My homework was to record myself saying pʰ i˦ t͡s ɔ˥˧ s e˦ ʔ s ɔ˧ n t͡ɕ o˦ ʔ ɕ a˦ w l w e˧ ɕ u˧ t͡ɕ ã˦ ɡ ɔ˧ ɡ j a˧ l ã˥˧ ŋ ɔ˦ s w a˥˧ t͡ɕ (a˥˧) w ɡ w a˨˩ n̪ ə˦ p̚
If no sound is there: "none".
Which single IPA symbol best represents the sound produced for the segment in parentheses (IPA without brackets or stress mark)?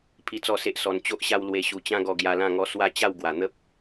a˥˧